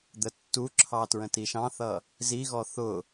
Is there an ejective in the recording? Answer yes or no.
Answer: no